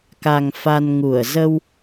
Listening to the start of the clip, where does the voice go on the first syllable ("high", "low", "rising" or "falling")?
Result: low